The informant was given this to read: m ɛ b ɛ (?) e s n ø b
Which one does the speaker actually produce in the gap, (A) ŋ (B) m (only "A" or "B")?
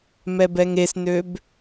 A